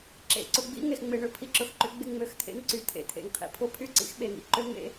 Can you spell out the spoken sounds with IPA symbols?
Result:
ǁ ḛ˨ ǀ ʊ˨ ɡ͡b ḭ˦ ŋ e˨ x ŋ͡m ɪ˨ ɳ ʏ˦ pʰ i˨ ǁ ʊ˨ x ǃ ʏ˨˦ ɡ͡b ɪ˦˨ ŋ͡m ø˨˦ x t̪ʰ ḛ˦ ŋ ǀ y˨ t̪ʰ ḛ˨˦ t̪ʰ ḛ˨ ŋ qʰ ḭ˦ pʰ ʊ˦ pʰ y˦ ǀ ḭ˦ x ɓ e˨ ŋ ḭ˨ ǃ ø˦ ŋ ḛ˦

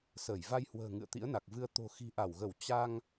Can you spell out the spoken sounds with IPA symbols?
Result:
s əː˧˩ j v a˧ j h w ə̤ː˨˩ ŋ ɨ̰˧˨ ə̯ t̪ ḭ˧˥ ə̯ n a˨˩ k̚ v ɨ˧ ə̯ t̪ o̤˨˩ x i̤˨˩ ʔ a˧˩ w ɣ ə˧˩ w t͡ɕ a˧ ŋ

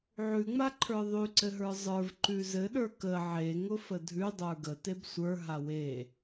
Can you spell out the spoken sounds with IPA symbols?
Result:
ʕ ʉ ŋ͡m a ǃʰ ə˞ ðˤ ʉ ǀ ɘ ɦ ə˞ zˤ ə˞ v ǃ ʉ z ɘ ɗ ə˞ k ə ʕ e ŋ ʊ f ə dʱ ʉ dˤ ə˞ ɡ ə t e b sʷ ə˞ ɦ a w e

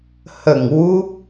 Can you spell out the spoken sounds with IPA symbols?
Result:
h ə˨˩ ŋ w u˦˥ p̚

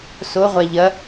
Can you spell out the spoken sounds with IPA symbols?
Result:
s o ʁʷ a ʎ ɐ

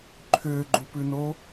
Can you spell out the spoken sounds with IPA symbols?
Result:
ǃʰ ʏː ɡ͡ǃ u p ʉ n o

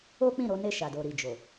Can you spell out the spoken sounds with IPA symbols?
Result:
o˦ k͡p ĩ˦˨ ɾ o˨˦ n e˦˨ ʃ a˨ d o˨ ɾ i˨ d͡ʒ o˨

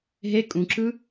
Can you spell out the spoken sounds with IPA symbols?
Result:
ɦ e kʼ ũ ǁ ɯ

